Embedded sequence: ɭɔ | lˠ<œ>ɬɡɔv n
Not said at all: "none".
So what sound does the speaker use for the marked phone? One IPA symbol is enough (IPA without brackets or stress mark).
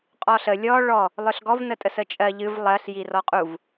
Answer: œ